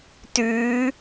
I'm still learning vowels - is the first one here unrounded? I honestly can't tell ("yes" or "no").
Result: no